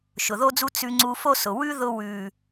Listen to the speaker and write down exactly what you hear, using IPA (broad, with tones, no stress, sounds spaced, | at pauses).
ʃ ʊ˨ ð o˦ d͡z u˦ t͡s ʉ˧ ŋ͡ǀ u˧ f o˦ s ʊ˨ w ʉ˦ ð ʊ˧ w ʉ˨